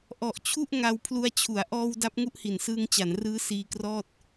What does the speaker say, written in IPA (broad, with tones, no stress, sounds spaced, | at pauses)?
ʔ ɔ˨˩ ʔ t͡ɕʰ u˥˩ ʔ ŋ a˧ w pʰ l u˧ a̯ t͡ɕʰ u˩˦ a̯ ʔ ɔː˧ w d a˦˥ p̚ ŋ u˥˩ ʔ h i˨˩ n s ɯː˧ ŋ t͡ɕ a˩˦ n r ɯː˦˥ s iː˧ k r ɔː˥˩ t̚